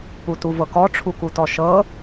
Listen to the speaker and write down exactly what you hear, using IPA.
p u t u v ɤ k ɔ ʈ͡ʂʰ u k u t ɔ ʃ ɤ

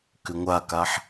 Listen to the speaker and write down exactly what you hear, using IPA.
k ʏ ŋʷ a k a ħ

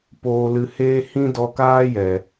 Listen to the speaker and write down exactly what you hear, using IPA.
p oː˧ l ɨ˧ h eː˦ h ĩ˦ d ɔ˧ k aː˦ j ɛ˨

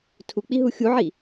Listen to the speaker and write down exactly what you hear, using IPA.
tʰ u k͡p i ɦ u xʲ u ʕ i

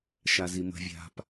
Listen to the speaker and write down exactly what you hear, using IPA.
ʃ a z i m ə̤ vʲ a̤ p

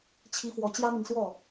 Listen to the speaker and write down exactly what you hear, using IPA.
t͡ɕʰ i˧˥ f w ɔ˨˩ t͡ɕ j ä˥ m i˨ ŋ s w ɔ˥˩

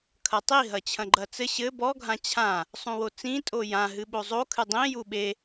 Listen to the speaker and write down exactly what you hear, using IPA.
kʰ ɐ tˤ i ɦ ɐ t͡ɕʰ ɐ̃ ɡ͡ǃ ɐ t͡s ɘ ɕ ɘ b ɔ ɡʱ ã t͡ɕʰ ã | sˤ ũ w o t͡s ĩ tʼ o j ã ɦ ɨ ɓ o zˤ o kʰ ɨ dˤ ĩ j u ɓ e

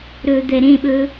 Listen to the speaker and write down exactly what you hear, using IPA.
ɾ ɵ d̪ ɛ ɾ ẽ ɓ ɵ

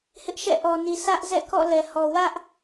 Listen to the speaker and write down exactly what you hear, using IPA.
h ɪ˦ ʔ ʃ ɛ̰˦˨ ʔ ɔ˨ n i˨ s ä˦ ʔ z ɛ̰˦˨ k ɔ̰˦˨ l ɛ˨ h ɔ˨ w ä˦ ʔ

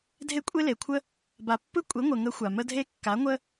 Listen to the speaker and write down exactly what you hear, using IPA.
dʱ e˦ kʷʼ e˦ l e˨ kʷʰ ə˦ | b a˨ pː ɯ˦ kʷʼ e˨˦ ŋʷ ə˨ ŋ ə˨˦ xʷ a˨ m ə˦ dʱ e˦ kː a˨˦ ŋʷ ə˦

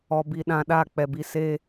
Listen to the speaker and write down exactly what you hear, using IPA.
ɔ˨ b i˨ ɗ ã˨ ɗ a˦˨ k͡p ɛ˨ b i˨ s e˦

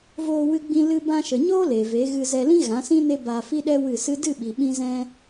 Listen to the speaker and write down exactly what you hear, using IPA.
v oː˧ w ɨ˧ ɡ͡b ĩ˧ l ɨ˧ b ã˧ ʃ ə˨ ɲ oː˦ l e˨ v e˨˦ ɣ ɨ˧ z ɛ˧ l ĩ˦ ɣ ã˨˦ s ĩ˦ n e˦ b aː˧ f i˦ ɗ ɛ˦ w ɨ˦˨ s ɨ˦ d ɨ˦˨ ɓ i˨ ɓ ĩ˧ z ɛ̃˧

